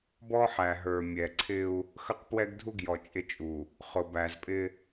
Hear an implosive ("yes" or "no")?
no